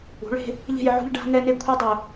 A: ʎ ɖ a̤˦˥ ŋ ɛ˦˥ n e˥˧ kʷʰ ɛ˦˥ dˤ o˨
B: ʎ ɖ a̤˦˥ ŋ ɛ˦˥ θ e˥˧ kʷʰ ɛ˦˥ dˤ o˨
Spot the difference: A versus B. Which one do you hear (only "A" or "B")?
A